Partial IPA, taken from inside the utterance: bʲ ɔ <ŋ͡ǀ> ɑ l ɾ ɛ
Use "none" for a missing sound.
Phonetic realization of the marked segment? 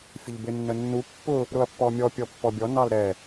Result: n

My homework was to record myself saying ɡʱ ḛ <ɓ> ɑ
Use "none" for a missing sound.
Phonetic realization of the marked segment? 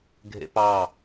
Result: p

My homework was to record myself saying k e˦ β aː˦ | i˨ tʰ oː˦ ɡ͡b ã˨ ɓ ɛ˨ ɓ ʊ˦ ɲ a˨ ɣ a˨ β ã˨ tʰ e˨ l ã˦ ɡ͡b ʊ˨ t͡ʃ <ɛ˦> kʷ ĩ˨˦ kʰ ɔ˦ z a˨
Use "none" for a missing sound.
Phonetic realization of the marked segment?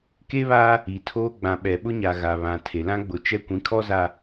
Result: ɛ˦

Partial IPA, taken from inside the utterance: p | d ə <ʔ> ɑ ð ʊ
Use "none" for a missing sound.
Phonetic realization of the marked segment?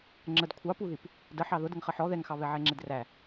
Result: ħ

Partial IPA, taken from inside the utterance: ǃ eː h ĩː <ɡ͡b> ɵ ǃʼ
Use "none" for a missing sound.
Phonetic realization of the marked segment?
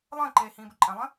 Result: b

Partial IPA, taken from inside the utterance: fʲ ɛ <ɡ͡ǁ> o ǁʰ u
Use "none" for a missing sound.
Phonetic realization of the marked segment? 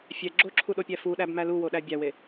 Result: ɡ͡ǁ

